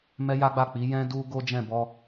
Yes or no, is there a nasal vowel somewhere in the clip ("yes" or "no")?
yes